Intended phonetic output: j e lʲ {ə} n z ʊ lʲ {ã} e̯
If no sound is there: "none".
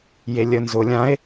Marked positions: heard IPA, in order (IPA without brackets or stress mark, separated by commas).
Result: ə, ã